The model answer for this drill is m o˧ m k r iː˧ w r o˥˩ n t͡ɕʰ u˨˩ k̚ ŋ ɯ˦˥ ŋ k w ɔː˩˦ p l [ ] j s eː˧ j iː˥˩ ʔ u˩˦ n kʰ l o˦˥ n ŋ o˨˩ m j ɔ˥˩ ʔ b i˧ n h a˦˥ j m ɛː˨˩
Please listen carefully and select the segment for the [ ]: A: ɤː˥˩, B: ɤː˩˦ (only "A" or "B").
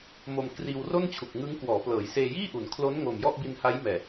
B